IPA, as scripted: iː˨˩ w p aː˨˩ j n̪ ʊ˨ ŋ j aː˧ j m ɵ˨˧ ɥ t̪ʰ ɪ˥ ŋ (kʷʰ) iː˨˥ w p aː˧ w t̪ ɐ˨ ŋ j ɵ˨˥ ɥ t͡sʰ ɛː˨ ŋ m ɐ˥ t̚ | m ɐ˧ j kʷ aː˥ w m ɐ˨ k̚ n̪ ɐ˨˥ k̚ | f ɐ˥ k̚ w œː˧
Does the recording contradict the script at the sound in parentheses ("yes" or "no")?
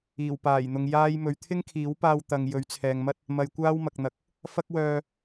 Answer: yes